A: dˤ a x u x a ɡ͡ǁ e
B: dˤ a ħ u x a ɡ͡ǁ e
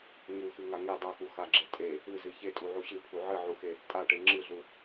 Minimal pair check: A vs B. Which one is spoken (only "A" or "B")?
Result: A